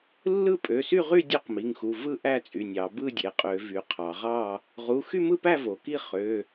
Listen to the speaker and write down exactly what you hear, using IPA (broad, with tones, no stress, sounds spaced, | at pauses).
lː ɯ˥˨ pʼ ø˩˧˩ s y˥˨ ʁ y˥˨ dʲ ø˥˨ q m i˩˧˩ ŋ x u˩˧˩ v ɯ˥˨ ʔ æ˥˨ t͡sʼ y˩˧˩ nʲ ɑ˩˧ b ɯ˥˨ dʲ e˩˧ qʼ ø˩˧ v y˩˧ qʰ ɑ˩˧ ʁ ɑ˥˨ | ʁ u˩˧˩ x y˥˨ m ɯ˥˨ p æ˥˨ v o˩˧ k i˥˨ χ ø˩˧˩